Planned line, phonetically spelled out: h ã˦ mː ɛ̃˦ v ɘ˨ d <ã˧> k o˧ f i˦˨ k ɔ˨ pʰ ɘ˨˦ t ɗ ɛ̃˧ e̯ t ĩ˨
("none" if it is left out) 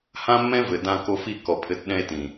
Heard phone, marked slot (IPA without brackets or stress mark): ã˧